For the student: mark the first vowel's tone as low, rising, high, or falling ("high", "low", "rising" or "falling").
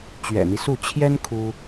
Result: low